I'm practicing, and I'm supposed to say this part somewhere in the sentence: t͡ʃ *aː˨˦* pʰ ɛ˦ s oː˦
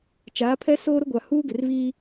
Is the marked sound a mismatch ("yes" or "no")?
no